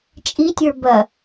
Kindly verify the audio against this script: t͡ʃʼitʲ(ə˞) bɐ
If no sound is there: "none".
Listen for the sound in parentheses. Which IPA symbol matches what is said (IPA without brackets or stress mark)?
ə˞